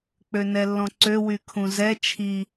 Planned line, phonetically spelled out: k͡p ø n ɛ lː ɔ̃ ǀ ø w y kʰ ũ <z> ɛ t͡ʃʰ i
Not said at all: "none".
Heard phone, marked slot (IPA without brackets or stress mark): z